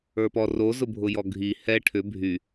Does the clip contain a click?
no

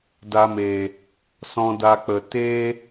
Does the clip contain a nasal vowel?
yes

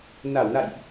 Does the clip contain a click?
no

